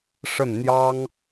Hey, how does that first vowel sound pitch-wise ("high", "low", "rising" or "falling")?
falling